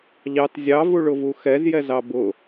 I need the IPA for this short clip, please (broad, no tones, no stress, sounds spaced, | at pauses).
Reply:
ʎ ɑ t zʲ ɑ v u ɭ ʊ v u x ɛ z j ɛ z ɑ b ʊ